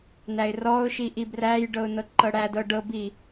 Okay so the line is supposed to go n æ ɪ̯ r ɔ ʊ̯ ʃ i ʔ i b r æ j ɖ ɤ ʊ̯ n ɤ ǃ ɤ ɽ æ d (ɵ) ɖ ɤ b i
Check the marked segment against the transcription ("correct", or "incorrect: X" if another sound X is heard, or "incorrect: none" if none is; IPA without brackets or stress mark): incorrect: ɤ